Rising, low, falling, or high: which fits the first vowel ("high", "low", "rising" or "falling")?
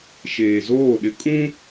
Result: low